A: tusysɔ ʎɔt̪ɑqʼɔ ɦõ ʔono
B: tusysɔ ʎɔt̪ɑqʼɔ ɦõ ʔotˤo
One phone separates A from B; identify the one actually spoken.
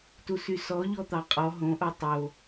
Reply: B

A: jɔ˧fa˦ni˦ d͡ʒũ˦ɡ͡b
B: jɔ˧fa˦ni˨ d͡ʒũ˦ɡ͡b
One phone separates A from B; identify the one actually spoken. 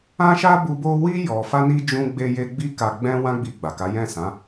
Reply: A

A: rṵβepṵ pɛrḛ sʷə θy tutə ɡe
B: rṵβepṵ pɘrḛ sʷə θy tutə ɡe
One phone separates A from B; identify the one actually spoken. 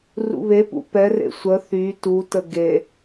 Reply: A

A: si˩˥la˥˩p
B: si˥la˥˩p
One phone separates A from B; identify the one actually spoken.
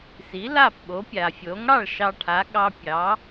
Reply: A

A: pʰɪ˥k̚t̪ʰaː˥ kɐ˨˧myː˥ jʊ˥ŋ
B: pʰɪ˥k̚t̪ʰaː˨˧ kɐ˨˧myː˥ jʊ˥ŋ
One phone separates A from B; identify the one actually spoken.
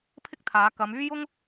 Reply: B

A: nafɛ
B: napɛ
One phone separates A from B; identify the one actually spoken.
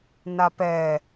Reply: B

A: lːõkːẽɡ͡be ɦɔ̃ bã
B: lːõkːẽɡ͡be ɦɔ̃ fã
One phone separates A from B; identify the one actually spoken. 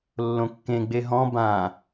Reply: A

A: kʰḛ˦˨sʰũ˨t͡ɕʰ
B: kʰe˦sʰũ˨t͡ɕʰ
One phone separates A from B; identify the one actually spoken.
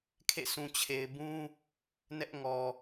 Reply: A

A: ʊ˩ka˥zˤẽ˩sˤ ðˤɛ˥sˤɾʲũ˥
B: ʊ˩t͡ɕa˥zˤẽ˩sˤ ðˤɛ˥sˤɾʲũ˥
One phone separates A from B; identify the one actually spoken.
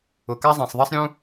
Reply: A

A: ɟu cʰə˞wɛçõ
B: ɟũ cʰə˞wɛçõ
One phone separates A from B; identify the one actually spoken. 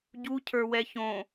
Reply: A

